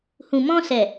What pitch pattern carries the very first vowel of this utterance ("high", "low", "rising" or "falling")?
low